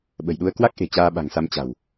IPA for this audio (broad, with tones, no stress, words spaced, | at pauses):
ɓə̤˨˩jɗu˧ə̯kwa˦˥k̚ʔe̤˨˩ t͡ɕaː˧ɓa̤˨˩ŋsa˧m t͡ɕa̤˨˩w